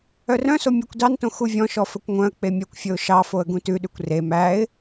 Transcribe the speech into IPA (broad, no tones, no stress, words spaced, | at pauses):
œrœ̃so mʲækʷdɑntõ xuvʲɔ̃ʃɔ fɵkʷŋʷœ̃ə̯k͡pe mʲœkʷfʲɵʊ̯ ʃɑfoə̯ ɡũtʉɗʉkʷ re mæɪ̯